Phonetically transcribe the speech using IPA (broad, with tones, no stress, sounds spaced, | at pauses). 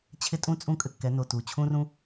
t͡ɕʰ ɪ˦ tʼ ũ˦ t͡sʼ ũ˦ kʼ ɘ˧ kː ɛ˨˦ n o˨ t u˨ t͡ɕʰ ũ˦ r ũ˦